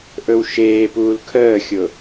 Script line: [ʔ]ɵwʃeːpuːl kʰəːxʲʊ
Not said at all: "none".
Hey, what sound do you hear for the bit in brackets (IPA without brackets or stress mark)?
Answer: ʔ